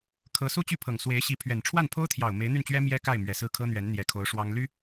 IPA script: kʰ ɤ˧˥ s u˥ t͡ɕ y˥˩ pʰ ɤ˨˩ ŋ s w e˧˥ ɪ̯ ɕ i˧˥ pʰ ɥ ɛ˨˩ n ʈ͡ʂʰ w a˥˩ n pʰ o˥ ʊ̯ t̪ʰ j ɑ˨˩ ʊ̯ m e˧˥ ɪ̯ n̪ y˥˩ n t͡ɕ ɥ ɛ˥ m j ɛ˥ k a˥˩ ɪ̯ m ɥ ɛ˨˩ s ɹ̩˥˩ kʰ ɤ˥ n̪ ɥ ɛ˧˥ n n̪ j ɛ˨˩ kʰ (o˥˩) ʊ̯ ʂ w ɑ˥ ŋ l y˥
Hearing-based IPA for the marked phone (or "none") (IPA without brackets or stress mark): o˧˥